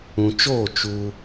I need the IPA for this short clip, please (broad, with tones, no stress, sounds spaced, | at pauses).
ũ˨ t͡ʃ oː˦˨ t͡ʃ u˧